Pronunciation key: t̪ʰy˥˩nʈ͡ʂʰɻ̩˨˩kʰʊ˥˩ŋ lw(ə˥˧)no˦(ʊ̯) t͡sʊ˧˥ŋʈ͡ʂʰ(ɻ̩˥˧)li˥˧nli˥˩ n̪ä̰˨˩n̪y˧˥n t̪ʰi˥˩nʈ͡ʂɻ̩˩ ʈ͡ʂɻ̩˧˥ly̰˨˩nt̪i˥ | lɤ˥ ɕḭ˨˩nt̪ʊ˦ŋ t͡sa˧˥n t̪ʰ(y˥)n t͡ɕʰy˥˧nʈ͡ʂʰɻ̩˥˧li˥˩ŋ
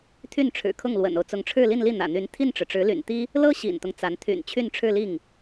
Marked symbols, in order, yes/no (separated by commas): no, yes, yes, no